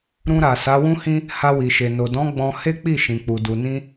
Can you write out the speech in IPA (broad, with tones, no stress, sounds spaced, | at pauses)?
ɾ ũ˧ ɾ a˨ s a˨˦ w ũ˦ h ĩ˦ | h a˧ w i˨ ʃ e˨ n o˨ d ɔ̃˨˦ ɡ͡b ɔ̃˧ h e˦ k͡p i˦˨ ʃ ĩ˨ k͡p u˨ d u˨ n ĩ˧